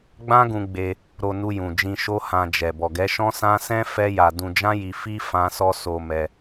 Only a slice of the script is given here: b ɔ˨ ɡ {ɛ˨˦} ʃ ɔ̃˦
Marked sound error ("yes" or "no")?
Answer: no